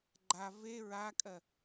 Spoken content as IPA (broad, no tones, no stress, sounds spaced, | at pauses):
ɡ͡ǃ a v e ɹ a kʼ ɜ